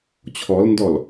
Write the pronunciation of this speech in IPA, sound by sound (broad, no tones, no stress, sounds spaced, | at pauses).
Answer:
t͡ɕʰ ɔ l n d ɔ l